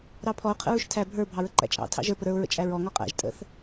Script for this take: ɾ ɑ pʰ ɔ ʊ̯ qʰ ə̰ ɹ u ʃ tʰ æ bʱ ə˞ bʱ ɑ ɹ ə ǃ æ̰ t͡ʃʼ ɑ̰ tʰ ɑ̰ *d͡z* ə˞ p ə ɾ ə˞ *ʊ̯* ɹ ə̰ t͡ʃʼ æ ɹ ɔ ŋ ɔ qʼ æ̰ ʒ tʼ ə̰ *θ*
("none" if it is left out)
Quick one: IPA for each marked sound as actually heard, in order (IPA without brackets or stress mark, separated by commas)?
ʒ, ʊ̯, θ